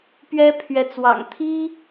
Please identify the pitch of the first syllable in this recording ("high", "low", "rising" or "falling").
high